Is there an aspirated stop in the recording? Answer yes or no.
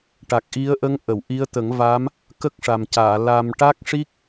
no